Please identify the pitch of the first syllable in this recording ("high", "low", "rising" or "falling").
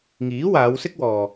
rising